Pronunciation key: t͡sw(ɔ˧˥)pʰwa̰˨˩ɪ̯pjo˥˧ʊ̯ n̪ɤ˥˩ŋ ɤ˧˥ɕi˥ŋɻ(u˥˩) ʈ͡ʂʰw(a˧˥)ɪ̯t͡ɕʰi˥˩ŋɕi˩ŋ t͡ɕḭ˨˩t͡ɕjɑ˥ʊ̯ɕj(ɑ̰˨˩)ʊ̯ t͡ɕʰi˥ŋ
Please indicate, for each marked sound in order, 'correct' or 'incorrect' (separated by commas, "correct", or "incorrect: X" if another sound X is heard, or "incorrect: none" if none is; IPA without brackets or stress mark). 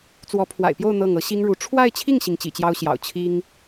correct, incorrect: u˧˥, incorrect: a˥˧, correct